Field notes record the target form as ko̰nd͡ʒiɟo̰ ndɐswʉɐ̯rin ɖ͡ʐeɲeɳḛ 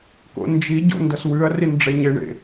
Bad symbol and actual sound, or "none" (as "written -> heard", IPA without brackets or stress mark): none